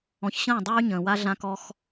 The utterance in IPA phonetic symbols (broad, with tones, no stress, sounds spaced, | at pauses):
ɔ̃˨ ç ɕ ə̃ː˦˨ dˤ yː˦ ɲ ə̃ː˨ w a˦ ɮ ã˦ k ɔ˦ x